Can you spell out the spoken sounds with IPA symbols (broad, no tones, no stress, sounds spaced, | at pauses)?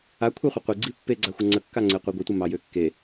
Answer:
a kʷʰ a χʷ ɘ qʷ i ɡ͡ǀ i pː e ɡ͡ǀ a xʷ ə ŋ͡ǀ ə kː a ŋ͡ǀ e qʷ i ɡʷ ɘ tʷ ə m ɑ j ø kː e